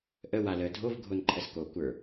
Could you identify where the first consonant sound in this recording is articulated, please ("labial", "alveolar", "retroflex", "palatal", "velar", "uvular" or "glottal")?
glottal